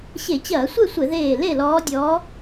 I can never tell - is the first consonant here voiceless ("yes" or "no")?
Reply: yes